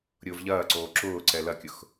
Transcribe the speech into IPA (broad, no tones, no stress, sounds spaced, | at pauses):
ɾʲ ʊː v ʎ ɐː ǀ oː ǁ ʊː ǀ ɛ l ɐ kʲ ʊ x